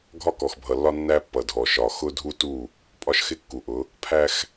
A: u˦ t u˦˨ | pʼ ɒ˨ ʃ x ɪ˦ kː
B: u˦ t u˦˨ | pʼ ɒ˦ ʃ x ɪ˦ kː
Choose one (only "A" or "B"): B